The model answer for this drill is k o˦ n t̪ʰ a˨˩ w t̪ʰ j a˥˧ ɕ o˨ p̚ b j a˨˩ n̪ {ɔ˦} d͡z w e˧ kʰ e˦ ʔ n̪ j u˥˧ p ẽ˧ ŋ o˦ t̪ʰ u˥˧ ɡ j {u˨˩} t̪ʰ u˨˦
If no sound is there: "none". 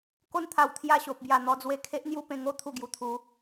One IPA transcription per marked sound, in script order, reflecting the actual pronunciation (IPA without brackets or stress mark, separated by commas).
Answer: ɔ˧, u˨˩